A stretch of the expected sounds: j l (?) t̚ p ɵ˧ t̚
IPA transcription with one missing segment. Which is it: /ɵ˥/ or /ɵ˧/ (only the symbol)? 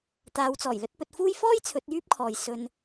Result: ɵ˥